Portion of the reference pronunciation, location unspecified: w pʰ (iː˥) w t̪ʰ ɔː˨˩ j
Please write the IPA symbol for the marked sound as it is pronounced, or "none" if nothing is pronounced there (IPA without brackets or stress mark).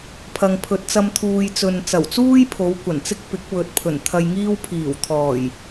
iː˨˩